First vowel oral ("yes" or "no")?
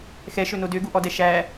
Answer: yes